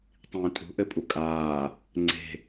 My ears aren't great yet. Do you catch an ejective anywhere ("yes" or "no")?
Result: yes